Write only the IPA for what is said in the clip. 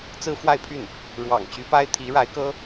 t͡sɹ̩˥fwa˥˧ɪ̯pʰy˥˩n | ɻwɑ̰˨˩ŋt͡ɕy˧˥pa˥ɪ̯ t̪ʰi˧˥ɻa˧˥ɪ̯kɤ˥

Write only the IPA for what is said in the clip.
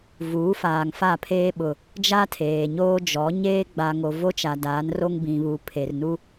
vuː˨˦faː˨ŋfa˦˨pʰeː˦ ɓʊ˨ | d͡ʒa˦tʰeː˨ɲoː˦ d͡ʒɔ˨˦ ɲeː˦ɡ͡ba˨ŋo˨ vo˦t͡ʃa˨ daː˨˦nro˦ŋ bĩ˨βu˨ pʰe˨rnu˦

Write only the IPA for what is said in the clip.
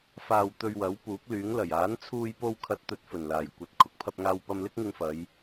faː˧wt̪ɵ˧ɥwɐ˨˥w puː˨˥k̚lyː˨˥ŋlɐ˨˩j aː˨˥nt͡sʰuː˧j po˧wkʰɐ˨˥t̚ t̪ɵ˨˥t̚fɵ˨˩nlaː˨˩j kʷɐ˨t̚ kʰʊ˨k̚pʰɐ˧p̚ŋaː˧w pɐ˧mlɪ˥k̚ŋɪ˧ŋfɐ˨˧j

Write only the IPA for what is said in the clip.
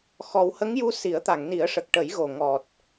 xɔ˨˩˦whə˧˥ŋju˧˥ si˨˩˦ə̯t̪a˨˩˨ŋni˨˩˦ə̯ʂə˨˩k̚ ʈə˨˩˦jɣo˨˩ ŋɔ˨˩t̚

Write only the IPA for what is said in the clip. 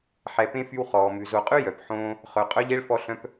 ħɛ˨pẽ˥fy˦w χɔː˩mʉ˩ zo˨qʼʉ˥ jœ˩pħõː˦ | χœ˩qʼœ˥ʎ e˥ɭfɔ˦ɬœ̃˦p

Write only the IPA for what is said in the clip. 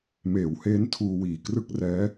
meː˩˦wheː˦˥n tʰuː˧wiː˨˩ krɯ˥˩k̚rɛː˦˥

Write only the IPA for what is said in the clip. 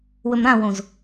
wɵmɾãwõz

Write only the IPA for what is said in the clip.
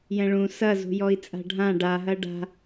jɛ̃ɭũ sɐ zṳjɔi̯t͡sʼa̤ɖʱã ɖaɦɐ ɖa̤

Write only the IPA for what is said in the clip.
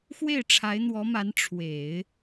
xwe˥˩ɪ̯ʈ͡ʂʰa˧˥ɪ̯n̪wɔ˧˥ma˧˥n ʈ͡ʂʰwe˨˩˦ɪ̯

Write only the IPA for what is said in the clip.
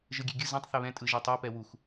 ʒɯɡʲeɡʲɯ zãtˤ θɛβɛ̃ tʼɯʒitˤɛ pɛwux

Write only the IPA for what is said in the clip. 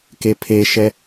kepʰeʃɛ

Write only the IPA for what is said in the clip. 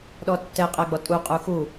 ɗɔtːɛ qʼɛɡ͡bɔtʼu qʼuxu

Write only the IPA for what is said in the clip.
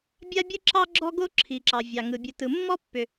bʲa˥bʲɯ˥ǁɑ˥ ɡ͡ǁɔ˥ɡo˥ ǁʰi˩ǁɑ˩ vʲɑ˩ ŋɯ˩ bʲɯ˩tɯ˩mːɔ˥ pːʏ˩

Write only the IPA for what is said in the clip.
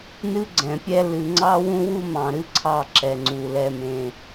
nɨ˦ɡ͡ǀɛ̃˨pʲɛ˦ lɨ˨ŋ͡ǀɑ˦ wũ˦wu˦mɑ̃˨ɾɨ˦ ǀʰɑ˦ ǁɛ˨ŋ͡ǀu˨ lɛ˨mẽ˨

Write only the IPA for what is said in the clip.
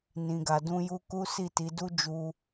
nĩ˨ɡa˨ dũ˧ju˧ ku˦si˦˨ti˨˦ du˦d͡ʒu˧

